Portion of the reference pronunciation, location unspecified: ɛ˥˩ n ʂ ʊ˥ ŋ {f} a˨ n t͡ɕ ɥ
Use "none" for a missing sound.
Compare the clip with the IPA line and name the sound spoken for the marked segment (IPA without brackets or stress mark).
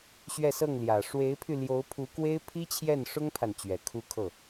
pʰ